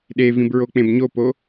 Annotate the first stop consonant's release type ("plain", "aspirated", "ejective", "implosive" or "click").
implosive